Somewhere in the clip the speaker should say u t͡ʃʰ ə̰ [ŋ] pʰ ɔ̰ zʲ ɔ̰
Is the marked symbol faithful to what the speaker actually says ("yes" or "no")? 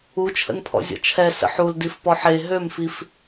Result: no